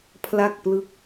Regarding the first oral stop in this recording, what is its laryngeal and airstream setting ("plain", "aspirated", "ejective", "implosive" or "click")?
aspirated